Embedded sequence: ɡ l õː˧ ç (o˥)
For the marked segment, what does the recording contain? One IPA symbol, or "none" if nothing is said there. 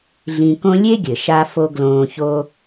o˥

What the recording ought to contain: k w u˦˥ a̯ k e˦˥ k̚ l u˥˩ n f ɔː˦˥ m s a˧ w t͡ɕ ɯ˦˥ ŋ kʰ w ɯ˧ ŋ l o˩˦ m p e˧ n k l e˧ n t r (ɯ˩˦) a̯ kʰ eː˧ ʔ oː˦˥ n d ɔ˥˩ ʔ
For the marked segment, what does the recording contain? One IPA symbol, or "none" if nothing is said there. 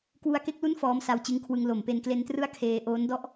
ɯ˥˩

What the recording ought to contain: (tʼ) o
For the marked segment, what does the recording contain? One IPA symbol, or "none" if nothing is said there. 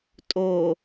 tʼ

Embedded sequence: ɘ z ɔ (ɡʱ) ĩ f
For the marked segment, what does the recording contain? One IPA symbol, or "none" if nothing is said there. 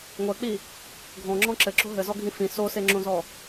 ɡʱ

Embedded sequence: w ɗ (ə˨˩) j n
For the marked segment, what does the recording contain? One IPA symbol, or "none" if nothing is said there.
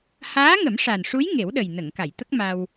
ə˨˩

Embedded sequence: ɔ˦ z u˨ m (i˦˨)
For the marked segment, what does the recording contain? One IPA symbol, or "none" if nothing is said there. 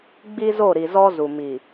i˨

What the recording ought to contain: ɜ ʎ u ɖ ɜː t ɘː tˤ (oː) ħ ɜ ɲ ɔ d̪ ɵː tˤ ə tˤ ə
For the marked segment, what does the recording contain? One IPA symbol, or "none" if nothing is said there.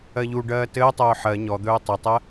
ɵː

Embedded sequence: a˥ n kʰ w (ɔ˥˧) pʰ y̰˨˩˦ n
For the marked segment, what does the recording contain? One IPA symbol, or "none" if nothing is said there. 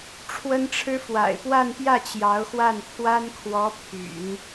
ɔ˧˥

